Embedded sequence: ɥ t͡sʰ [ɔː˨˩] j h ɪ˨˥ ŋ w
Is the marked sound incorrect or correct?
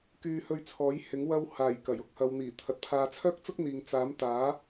incorrect